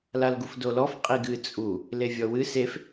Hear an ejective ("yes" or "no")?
yes